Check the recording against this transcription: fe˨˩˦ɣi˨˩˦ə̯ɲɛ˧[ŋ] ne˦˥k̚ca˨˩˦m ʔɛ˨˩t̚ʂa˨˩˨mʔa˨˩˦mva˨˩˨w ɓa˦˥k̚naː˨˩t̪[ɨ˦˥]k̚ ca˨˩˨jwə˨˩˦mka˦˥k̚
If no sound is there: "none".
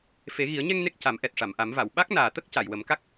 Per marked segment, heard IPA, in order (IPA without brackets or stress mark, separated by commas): ŋ, ə˦˥